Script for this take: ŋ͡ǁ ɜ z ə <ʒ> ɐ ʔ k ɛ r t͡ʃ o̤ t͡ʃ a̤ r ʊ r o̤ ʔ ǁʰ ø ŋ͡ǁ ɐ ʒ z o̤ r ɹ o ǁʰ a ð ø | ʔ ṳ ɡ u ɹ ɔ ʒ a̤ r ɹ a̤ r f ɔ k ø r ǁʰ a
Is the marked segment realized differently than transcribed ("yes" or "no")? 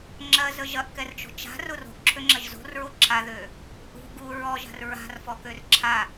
no